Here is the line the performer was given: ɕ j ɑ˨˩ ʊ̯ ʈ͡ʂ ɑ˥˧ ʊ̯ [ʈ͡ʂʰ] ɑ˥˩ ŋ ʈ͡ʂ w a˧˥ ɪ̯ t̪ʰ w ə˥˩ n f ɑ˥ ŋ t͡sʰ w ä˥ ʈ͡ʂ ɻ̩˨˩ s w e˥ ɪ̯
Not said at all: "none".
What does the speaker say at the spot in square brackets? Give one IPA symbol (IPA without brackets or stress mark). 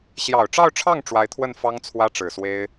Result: ʈ͡ʂʰ